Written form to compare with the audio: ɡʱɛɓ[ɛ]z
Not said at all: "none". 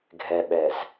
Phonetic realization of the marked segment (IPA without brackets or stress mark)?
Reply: ɛ